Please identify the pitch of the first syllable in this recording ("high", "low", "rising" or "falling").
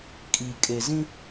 low